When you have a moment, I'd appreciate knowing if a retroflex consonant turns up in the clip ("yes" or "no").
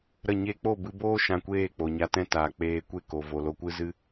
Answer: no